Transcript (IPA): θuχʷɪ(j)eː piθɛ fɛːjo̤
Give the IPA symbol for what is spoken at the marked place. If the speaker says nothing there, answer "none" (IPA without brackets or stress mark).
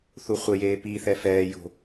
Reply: j